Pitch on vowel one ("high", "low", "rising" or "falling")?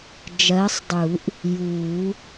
rising